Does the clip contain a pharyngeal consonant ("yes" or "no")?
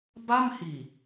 no